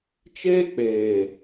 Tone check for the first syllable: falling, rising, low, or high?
high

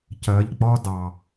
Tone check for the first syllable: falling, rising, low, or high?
rising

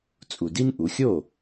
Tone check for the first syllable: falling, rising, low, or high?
low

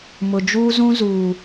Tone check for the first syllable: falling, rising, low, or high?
low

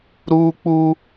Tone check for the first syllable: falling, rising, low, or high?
high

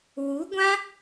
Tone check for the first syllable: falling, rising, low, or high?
rising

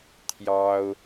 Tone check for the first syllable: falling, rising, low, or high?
high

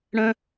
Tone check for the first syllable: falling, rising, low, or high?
high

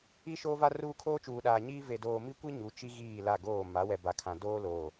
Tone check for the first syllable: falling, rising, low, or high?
high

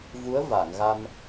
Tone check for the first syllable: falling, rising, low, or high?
rising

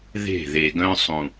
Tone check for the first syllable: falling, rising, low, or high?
falling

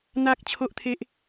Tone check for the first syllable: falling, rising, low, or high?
high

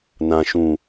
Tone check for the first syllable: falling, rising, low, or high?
low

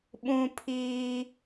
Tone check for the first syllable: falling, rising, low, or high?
high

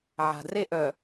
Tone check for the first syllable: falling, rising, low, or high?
low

